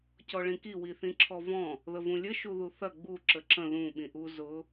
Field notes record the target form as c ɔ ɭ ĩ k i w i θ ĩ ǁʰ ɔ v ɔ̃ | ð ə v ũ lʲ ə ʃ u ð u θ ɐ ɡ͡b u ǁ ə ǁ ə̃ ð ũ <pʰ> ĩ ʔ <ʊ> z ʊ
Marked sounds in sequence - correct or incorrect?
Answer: incorrect: ɓ, incorrect: u

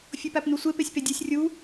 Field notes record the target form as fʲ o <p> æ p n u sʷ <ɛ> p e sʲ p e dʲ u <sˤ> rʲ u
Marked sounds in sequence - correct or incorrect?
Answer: correct, incorrect: e, incorrect: sʲ

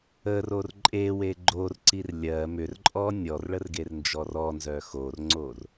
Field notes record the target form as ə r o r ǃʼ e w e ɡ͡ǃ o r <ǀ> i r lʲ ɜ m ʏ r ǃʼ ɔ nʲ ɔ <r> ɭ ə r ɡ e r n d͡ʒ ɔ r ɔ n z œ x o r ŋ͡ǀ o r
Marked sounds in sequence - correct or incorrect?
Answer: correct, correct

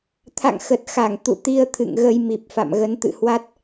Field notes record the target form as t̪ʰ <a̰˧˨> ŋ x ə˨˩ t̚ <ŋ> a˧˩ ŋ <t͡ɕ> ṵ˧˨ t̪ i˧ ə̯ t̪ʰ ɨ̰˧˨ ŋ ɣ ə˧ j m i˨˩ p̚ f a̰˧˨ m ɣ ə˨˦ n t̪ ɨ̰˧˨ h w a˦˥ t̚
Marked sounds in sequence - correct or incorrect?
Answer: correct, incorrect: x, incorrect: t̪

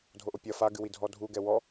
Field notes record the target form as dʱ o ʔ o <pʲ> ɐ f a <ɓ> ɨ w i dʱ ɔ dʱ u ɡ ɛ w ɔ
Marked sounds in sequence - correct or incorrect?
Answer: correct, incorrect: ɡ

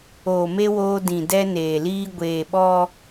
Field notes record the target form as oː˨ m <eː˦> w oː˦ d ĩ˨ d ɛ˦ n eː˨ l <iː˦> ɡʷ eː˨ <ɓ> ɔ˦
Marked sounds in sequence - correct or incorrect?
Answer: incorrect: e˦, correct, correct

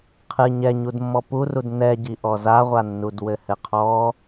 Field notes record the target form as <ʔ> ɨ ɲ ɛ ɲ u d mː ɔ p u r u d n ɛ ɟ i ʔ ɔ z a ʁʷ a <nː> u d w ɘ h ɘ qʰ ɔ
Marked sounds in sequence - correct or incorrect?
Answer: incorrect: qʰ, correct

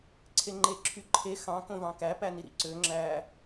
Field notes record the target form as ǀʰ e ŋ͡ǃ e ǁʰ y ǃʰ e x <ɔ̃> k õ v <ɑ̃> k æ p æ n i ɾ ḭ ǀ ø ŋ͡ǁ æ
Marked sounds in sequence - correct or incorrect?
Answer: incorrect: ɑ̃, correct

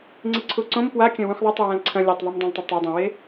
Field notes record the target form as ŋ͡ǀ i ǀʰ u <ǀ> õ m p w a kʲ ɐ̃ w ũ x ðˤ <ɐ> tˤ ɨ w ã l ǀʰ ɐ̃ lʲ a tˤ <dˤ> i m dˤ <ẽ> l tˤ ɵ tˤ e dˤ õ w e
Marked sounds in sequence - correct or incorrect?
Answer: correct, correct, incorrect: ðˤ, correct

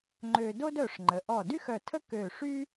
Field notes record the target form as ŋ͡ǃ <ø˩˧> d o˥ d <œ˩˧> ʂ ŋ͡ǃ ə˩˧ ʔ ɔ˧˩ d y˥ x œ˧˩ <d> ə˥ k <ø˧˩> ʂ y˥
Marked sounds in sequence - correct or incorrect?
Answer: incorrect: ø˧, incorrect: œ˧˩, incorrect: tʰ, correct

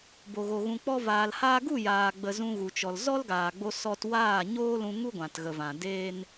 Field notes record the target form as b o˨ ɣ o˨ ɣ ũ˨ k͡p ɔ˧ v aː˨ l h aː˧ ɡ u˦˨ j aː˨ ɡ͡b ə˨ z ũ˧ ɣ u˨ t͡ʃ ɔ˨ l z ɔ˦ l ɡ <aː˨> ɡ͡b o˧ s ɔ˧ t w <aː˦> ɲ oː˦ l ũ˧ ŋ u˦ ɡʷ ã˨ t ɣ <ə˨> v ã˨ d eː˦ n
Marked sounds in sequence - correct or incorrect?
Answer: correct, incorrect: aː˦˨, correct

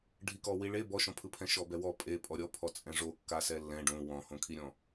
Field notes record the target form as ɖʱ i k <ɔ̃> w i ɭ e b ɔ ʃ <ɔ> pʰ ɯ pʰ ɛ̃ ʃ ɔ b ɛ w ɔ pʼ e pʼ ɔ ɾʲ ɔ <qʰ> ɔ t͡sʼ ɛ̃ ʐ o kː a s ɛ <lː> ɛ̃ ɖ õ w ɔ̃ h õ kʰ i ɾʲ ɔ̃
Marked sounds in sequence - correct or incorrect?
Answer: incorrect: ɔ, incorrect: ɔ̃, incorrect: pʰ, correct

